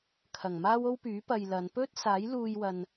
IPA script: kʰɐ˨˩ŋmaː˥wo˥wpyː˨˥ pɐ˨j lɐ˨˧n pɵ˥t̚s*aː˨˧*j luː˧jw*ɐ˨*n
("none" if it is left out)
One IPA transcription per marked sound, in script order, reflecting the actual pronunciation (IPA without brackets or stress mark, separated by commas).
aː˨˥, ɐ˨